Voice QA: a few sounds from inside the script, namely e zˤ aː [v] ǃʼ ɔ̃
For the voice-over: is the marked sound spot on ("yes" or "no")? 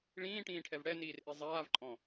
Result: yes